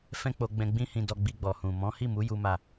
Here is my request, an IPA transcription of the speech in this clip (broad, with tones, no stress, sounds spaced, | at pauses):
f ɛ̃˦ k͡p o˧ ɡ͡b ɛ̃˧ ɡ͡b ĩ˦ h ĩ˧ d ɔ˧ ɡ͡b i˧ ɡ͡b ɔ˨ h ũ˨ m ɔ̃˨˦ h i˦˨ m u˨˦ j u˦ m a˦˨